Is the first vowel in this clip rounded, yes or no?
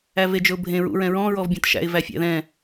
no